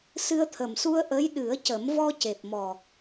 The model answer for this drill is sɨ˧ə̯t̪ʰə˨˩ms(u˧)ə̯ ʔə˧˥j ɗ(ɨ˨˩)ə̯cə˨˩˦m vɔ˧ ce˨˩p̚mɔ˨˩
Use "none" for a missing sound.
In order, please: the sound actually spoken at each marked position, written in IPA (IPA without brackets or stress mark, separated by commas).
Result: u˧, ɨ˨˩˦